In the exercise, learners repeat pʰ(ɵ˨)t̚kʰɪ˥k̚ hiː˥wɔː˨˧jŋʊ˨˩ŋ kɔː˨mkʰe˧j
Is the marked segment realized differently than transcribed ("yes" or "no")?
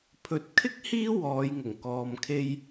no